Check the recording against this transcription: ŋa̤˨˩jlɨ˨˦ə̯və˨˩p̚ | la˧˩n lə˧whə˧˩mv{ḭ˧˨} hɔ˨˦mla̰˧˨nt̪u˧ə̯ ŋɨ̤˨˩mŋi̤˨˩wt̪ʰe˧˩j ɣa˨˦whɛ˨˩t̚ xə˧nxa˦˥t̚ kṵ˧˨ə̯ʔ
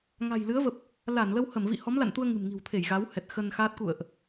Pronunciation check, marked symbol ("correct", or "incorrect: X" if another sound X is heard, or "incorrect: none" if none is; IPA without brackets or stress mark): correct